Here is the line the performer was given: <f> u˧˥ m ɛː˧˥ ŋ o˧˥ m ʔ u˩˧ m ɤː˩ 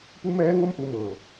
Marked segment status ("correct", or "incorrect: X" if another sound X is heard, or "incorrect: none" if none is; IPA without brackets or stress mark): incorrect: p